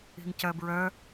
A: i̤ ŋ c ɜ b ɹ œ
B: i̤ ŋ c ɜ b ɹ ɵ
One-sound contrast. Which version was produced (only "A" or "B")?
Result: A